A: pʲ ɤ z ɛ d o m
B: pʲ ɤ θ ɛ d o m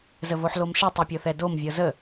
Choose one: B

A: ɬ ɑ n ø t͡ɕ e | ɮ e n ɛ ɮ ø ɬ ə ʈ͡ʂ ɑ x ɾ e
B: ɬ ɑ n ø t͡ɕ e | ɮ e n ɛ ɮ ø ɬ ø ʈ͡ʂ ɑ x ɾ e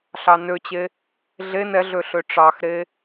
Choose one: B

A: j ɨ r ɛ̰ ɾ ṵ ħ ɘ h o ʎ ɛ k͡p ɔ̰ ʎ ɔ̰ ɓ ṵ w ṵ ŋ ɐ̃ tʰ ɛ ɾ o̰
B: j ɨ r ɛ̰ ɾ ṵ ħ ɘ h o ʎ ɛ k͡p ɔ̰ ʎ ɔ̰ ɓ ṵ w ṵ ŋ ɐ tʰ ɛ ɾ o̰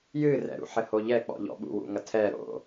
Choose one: B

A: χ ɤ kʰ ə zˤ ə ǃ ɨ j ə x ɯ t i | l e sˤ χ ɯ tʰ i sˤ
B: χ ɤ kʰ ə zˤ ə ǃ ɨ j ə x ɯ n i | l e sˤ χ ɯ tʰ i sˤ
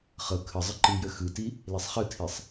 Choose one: A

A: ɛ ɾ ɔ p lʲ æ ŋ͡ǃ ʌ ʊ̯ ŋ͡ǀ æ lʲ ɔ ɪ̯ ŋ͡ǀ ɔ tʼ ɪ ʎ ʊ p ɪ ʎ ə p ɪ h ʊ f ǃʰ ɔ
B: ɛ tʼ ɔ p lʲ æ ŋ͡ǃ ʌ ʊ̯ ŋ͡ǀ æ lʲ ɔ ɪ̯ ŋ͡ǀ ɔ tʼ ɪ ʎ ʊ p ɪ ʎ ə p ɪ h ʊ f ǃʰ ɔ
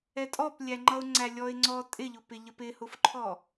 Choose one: B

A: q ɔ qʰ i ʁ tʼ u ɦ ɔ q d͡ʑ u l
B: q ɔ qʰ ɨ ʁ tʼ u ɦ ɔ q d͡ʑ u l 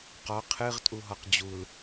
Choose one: B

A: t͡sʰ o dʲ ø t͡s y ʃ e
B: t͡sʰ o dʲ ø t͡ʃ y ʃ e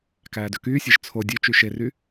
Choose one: B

